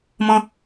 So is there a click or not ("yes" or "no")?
no